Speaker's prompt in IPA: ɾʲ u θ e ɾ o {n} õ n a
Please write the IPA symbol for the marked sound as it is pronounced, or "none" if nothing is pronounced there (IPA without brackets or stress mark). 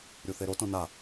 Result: t